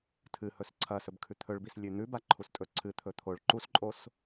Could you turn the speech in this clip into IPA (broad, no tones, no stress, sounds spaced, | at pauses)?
tʰ ɨ h ɵ s ǀʰ ɐ s ɵ b kʰ ʉ t̪ʰ ɵ ɭ b i s lʲ ʉ n̪ ʉ b a ǃʰ u s tʼ ɵ ǀʰ ɨ t̪ʰ ɵ t̪ʰ o ɭ ǃ u s ǃʼ o s